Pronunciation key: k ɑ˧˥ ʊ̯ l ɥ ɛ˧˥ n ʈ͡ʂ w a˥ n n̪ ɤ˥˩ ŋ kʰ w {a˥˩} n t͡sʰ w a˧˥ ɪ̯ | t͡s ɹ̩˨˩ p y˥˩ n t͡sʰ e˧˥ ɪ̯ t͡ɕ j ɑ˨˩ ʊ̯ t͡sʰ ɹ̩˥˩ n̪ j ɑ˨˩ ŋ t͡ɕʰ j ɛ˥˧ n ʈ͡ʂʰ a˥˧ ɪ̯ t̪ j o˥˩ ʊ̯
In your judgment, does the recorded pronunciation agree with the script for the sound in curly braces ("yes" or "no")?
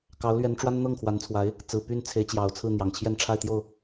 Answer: no